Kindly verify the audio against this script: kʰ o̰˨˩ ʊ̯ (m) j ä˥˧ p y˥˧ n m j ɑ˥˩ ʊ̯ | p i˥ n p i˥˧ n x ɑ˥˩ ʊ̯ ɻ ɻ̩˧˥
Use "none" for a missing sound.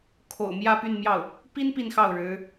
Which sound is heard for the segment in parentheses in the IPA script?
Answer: m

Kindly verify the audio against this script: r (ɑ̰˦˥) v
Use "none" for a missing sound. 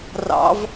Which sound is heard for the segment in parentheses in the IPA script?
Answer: ɑ̰˦˥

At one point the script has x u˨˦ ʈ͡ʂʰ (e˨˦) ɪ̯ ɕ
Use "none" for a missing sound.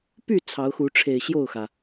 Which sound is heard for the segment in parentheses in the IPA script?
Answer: e˨˩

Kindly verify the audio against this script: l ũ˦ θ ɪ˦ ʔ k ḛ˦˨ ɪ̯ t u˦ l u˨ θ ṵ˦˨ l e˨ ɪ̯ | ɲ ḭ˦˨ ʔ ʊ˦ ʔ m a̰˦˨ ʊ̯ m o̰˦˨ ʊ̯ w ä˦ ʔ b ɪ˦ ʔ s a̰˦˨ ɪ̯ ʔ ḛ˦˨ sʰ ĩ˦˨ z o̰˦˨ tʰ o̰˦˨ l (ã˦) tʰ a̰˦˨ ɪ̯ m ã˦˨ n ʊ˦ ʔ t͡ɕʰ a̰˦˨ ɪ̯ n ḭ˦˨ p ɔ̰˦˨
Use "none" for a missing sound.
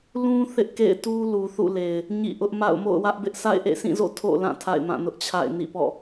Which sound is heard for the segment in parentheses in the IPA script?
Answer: ã˦˨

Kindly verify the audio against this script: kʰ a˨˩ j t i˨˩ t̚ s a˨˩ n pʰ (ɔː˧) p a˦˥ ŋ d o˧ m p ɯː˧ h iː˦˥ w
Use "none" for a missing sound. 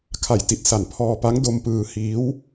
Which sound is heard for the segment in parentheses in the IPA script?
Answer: ɔː˧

